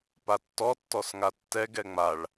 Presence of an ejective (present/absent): absent